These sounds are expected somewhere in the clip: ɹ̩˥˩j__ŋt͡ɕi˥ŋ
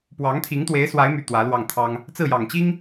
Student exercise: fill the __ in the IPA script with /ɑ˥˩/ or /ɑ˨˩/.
ɑ˨˩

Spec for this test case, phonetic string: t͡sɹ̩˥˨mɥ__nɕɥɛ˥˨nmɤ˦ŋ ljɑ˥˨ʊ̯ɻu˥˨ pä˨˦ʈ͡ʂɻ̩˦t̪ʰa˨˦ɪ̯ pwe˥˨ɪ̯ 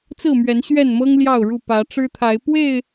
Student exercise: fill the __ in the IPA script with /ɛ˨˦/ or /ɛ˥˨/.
ɛ˨˦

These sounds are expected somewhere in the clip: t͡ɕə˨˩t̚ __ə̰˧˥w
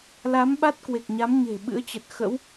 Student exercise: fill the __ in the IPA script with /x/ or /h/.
x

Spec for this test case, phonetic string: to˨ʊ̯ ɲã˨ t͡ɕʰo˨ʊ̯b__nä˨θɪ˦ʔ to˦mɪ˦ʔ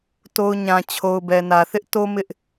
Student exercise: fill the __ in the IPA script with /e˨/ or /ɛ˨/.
ɛ˨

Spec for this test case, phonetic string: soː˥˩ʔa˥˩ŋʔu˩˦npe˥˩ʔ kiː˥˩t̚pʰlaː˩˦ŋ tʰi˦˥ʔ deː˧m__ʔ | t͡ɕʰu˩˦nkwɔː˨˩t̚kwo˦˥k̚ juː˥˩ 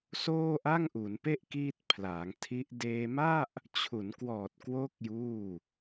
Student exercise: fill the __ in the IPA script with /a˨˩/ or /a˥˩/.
a˥˩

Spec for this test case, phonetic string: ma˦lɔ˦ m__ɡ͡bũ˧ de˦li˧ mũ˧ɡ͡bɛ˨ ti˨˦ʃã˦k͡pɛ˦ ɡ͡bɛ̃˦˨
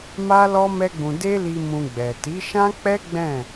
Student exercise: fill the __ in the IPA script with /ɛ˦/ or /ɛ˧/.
ɛ˦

